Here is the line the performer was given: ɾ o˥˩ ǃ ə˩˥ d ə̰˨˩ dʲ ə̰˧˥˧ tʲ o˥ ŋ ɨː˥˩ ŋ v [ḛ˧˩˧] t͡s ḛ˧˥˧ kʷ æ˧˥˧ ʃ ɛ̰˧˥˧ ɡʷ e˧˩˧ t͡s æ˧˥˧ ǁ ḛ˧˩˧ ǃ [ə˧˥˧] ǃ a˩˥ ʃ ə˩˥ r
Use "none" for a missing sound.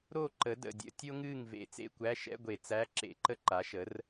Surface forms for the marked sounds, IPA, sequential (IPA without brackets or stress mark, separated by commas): ḛ˧˩˧, ə˥